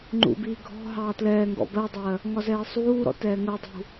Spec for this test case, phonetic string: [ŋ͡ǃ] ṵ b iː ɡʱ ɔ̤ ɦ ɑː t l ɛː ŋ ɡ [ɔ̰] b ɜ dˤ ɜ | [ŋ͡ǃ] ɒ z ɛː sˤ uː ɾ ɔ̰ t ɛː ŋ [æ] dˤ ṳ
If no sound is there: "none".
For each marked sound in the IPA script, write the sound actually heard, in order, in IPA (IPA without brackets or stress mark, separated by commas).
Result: ŋ͡ǃ, ɔ̰, ŋ, ɜ